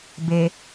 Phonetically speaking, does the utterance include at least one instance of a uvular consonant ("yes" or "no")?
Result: no